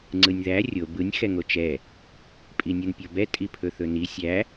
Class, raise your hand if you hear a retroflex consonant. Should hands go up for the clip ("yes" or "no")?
no